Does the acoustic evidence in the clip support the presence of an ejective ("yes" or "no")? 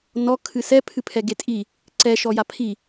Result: yes